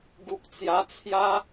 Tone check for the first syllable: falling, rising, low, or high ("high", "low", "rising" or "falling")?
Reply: low